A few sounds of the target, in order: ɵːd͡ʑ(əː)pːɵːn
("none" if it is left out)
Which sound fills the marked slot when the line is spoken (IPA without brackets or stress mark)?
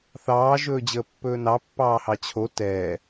əː